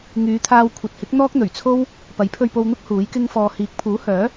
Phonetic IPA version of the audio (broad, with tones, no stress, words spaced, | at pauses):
ŋyː˨˧t̪ʰaː˧w kʷʰɐ˨t̚hɪ˨˥k̚ n̪ɔː˥k̚n̪ɵ˨˩ɥt͡sʰo˥w | pɐ˨˥jpʰɵ˧ɥpo˧wn̪ʊ˥k̚ huː˨˥jkɪ˥ŋfɔː˧ hiː˨˥k̚pʰuː˨˥hœː˨˥